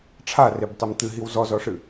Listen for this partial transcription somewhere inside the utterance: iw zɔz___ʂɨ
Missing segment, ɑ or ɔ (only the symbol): ɔ